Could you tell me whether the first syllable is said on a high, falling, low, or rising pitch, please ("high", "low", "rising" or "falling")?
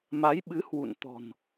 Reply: rising